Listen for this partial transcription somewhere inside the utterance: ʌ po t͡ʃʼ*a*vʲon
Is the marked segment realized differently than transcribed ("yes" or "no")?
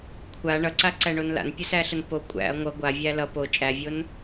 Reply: yes